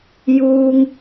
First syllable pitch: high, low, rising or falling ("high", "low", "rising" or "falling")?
high